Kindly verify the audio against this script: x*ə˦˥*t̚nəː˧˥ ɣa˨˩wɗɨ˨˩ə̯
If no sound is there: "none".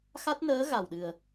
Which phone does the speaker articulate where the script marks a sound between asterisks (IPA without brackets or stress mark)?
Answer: a˦˥